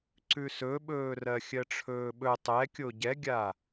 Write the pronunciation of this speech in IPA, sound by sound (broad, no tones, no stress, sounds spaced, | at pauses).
ǀ ʉ s ɵ ɓ ɵː r ɜ xʲ ɜ ʈ͡ʂʰ ɵː ɓ ɵ tˤ ɛ kʲ o ɟ ɛ ɡʲ a